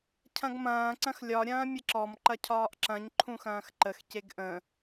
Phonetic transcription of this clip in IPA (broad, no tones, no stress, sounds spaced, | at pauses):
cʰ ɐ̃ ɡ m ɐ̃ː ǀ ɐ̃ x lʲ ɒ ɾʲ ɐ̃ː mʲ ə ǁ ɔ m ǃ ɐ cʰ ɒː ʔ ǁ ɐ̃ ɲ ǃʰ ũ x ɐ̃ː x ǃ ə x c e ɡ ʔ ə̃